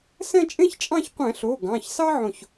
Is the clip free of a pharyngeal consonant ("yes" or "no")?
no